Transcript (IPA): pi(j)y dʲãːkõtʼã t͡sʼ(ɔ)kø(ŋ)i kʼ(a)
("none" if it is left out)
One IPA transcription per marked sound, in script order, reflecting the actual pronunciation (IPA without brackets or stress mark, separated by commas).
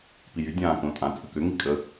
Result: j, ə, ŋ, ə